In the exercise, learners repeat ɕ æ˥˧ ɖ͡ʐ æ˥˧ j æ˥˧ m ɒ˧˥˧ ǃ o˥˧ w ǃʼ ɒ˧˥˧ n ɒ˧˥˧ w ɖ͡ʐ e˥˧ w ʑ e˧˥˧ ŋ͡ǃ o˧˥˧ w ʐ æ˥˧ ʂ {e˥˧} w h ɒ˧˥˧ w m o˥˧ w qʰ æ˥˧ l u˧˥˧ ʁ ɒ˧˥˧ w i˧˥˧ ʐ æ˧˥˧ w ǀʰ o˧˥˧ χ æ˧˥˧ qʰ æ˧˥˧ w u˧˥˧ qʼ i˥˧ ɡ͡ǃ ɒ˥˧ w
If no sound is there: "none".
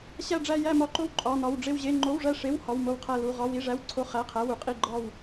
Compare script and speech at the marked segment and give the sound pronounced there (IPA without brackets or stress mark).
e˧˥˧